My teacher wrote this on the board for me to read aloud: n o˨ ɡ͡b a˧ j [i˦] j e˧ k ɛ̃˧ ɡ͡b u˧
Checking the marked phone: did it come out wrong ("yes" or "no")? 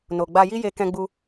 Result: no